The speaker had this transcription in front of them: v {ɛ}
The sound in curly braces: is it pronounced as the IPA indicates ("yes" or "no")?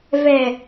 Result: yes